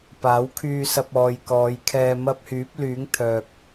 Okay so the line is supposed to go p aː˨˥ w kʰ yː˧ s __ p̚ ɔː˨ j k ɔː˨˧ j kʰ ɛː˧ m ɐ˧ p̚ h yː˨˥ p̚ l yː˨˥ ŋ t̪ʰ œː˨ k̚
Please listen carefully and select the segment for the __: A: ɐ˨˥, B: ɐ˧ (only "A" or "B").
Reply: B